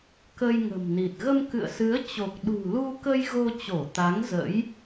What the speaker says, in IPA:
k ə˧ j ŋ ə̤˨˩ m n i˨˩ t̚ ɣ ə˧ m k ɨ̰˧˨ ə̯ s ɨ˨˦ ə̯ t͡ɕ o˨˩ k̚ ɗ ṳ˨˩ l u˧ k ə˧ j ɣ o˧ t͡ɕ o˧˩ t̪ a˨˦ ŋ z ə̰˧˥ j

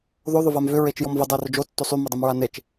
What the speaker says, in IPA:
ð o ðˤ ʊ v a m v ʏ ɹ e t͡ʃ j ɔ m v ə dˤ e r ʊ d͡ʒ o tː o sˤ y m ø dˤ ɪ m ɹ a n e t͡ʃ

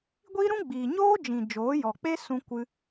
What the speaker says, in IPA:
ɡʷ i˦ ɾ ũ˦ ɡ͡b iː˨ ɲ oː˦ d͡ʒ ĩ˨ d͡ʒ oː˨˦ j ɔ˨ k͡p e˦ s ũ˧ kʷ ɨ˧

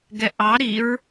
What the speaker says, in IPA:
ɡ ɛ ʔ ɑ ɾ i ɹ

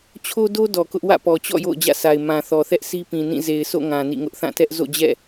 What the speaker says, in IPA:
t͡ɕʰ o˦ d o˦ d ɔ˨ k ʊ˦ ʔ w ä̰˦˨ p ɔ˨ t͡ɕ ɔ̰˦˨ j o̰˦˨ ʊ̯ d͡ʑ ä̰˦˨ sʰ a˨ ɪ̯ m ã˨ θ ɔ˨ θ ɛ˦ ʔ sʰ i˦ p ĩ˨ n ĩ˦˨ z e˨ ɪ̯ s o̰˦˨ ŋ ã˨ n ḭ˦˨ ŋ ʊ˦ ʔ θ ã˦˨ t ɛ˦ ʔ z o̰˦˨ d͡ʑ ɛ̰˦˨

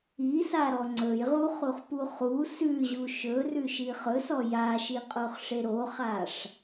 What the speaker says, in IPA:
i s a ɾ ɔ ŋ͡ǀ ɵ j ʁ u χ u χ p u χ u s ʉ ʑ u ʃ ɵ r ʉ ʃ i χ ɵ s ɔ j a ʃ i qʼ o χ ʂ e ɾ o χ a ʂ

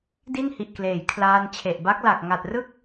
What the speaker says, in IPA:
d i˥˩ n h i˨˩ ʔ k l eː˩˦ j kʰ l aː˧ n t͡ɕʰ e˨˩ ʔ b a˦˥ k̚ l a˨˩ k̚ ŋ a˨˩ t̚ r ɯ˥˩ k̚

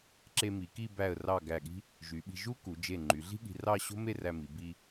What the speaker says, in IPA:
ǁ e˧ m i˩˧ k i˥˧ b æ˧˩ ə̯ r ɑ˧˩ ɡ æ˧˩ ɠ i̤˥ | ʒ y˩˧ ɓ i̤˧ ʒ u˥ k u˩˧ d͡ʒ e˧˩ ŋ͡ǃ y˩˧ ɮ i̤˥ ɠ i̤˧ r ɑ˥˧ ɕ o̤˥ m e˥˧ r æ˧ m i˩˧ b i˧

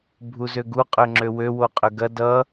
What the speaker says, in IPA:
bʱ u z ø ɡ u qʼ ø ŋ͡ǁ ø w ø w o qʼ ø ɡ ɐ d ʌ

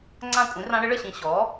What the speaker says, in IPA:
ŋ͡ǀ ã˥˩ kʷʼ ĩ˩˥ r ã˧˥ ɽ ɘ˩˥ ɭ ə˥˩ ɕ ĩ˧˩ ɕ ɔ˩˥

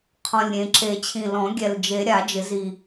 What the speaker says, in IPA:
qʰ ɔ̃˨˩ lʲ ɾʲ ẽ˨˩ ǁ e˨˩˦ t͡ɕʰ ĩ˨˩ l ɔ̃˨˩˦ ɡʲ ɛ˨˩ l d͡ʒ e˨˩˦ ɾʲ a˨˩˦ d͡ʒ ɪ˨˩˦ z i˨˩

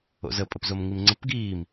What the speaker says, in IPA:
o̰ z ə pʼ ə p z o m ŋ i m ŋ͡ǀ ə p ɡ iː m

